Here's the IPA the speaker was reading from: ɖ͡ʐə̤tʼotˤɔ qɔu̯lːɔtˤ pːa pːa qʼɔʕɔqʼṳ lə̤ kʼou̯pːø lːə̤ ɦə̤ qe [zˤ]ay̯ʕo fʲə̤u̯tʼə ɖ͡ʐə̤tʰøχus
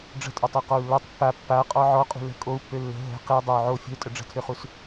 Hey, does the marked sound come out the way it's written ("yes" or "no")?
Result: no